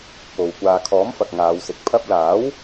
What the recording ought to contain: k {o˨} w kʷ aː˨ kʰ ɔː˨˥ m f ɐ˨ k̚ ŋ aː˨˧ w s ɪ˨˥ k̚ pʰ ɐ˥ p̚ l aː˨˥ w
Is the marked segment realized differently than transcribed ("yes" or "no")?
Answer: no